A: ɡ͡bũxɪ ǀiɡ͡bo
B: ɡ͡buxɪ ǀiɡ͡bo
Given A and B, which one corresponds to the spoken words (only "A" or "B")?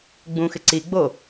A